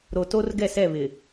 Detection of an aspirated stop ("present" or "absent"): absent